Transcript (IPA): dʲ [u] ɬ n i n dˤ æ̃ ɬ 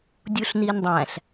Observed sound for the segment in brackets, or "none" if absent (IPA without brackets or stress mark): u